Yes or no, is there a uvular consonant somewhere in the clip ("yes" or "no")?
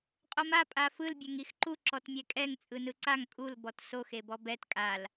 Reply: yes